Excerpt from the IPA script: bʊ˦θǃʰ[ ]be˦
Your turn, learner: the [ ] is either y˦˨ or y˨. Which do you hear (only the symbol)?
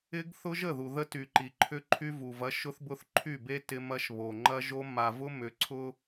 y˦˨